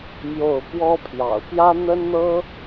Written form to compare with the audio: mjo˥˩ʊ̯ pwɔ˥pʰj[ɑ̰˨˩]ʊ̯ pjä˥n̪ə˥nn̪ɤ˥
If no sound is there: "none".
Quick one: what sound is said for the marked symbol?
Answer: ɑ̰˨˩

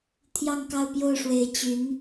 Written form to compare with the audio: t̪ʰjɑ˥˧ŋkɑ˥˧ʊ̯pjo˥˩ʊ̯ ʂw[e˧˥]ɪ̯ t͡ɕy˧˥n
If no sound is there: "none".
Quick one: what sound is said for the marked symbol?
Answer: e˧˥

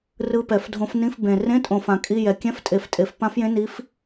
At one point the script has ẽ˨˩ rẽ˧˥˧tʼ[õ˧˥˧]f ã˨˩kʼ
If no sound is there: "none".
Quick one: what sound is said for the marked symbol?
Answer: õ˨˩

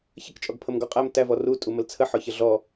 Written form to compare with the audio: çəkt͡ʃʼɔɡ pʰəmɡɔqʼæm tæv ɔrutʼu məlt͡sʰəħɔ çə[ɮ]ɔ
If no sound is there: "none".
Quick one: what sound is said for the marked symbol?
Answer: ɮ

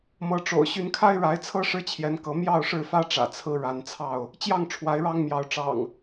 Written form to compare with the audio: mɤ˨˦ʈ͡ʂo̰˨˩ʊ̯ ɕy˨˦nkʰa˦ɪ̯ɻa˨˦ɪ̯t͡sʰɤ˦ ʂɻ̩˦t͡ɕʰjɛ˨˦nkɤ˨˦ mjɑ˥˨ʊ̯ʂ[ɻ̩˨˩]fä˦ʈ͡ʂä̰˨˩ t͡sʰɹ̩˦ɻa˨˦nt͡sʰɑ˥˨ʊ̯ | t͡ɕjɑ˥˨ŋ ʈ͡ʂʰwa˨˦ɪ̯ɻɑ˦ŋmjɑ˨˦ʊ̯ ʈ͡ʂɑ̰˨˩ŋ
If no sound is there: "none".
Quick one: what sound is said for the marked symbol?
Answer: ɻ̩˥˨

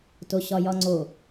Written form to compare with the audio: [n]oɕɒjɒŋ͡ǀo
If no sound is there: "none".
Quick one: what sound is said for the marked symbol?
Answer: t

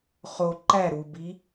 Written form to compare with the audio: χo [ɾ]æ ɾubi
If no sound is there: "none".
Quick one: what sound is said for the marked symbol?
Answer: ǃ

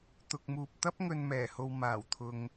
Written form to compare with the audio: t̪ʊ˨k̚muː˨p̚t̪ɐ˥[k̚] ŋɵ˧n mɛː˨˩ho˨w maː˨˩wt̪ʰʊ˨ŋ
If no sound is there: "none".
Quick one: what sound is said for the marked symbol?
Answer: p̚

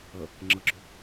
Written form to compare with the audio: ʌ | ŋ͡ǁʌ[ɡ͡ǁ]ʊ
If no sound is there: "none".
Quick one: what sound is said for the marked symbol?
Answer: ɡ͡ǁ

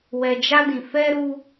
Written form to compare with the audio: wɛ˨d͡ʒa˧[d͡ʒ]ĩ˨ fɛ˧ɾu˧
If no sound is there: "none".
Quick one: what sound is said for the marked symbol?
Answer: d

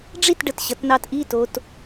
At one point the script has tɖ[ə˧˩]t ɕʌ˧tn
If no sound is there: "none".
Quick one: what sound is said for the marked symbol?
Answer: ə˧˩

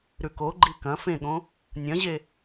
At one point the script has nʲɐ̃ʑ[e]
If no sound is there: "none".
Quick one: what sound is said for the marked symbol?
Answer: e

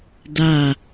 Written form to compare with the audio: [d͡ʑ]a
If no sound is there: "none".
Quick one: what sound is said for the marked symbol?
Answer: d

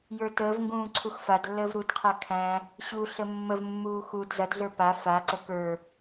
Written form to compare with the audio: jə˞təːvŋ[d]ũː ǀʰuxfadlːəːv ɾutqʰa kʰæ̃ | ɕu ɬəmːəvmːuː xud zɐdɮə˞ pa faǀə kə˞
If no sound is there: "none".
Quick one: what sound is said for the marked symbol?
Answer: ɡ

